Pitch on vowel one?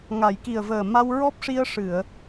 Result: low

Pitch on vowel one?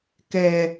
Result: low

